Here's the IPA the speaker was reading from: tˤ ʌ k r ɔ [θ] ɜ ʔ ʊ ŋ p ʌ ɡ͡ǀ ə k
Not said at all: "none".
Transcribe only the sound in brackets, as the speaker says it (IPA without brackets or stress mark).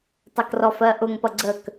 f